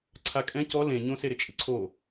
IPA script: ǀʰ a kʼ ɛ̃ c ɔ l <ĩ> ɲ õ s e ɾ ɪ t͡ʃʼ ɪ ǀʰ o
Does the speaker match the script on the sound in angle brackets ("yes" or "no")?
no